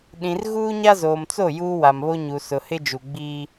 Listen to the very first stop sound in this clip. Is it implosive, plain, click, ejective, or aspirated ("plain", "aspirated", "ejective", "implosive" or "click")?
implosive